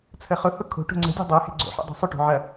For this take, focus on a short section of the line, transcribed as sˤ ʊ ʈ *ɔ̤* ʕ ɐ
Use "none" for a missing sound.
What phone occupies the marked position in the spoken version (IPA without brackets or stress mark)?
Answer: o̤